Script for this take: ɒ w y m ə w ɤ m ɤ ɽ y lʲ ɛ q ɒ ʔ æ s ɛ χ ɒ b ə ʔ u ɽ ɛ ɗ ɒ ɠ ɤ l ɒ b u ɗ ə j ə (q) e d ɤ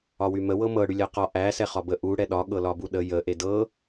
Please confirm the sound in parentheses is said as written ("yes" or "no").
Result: no